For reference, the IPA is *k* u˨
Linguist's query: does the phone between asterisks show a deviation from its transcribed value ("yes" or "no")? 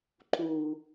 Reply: yes